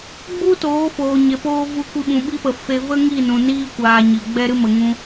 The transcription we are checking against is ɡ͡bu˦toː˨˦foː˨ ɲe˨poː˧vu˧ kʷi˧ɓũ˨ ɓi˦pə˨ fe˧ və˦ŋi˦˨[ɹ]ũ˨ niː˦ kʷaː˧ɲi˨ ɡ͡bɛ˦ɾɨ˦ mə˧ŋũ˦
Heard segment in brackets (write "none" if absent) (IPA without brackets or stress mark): n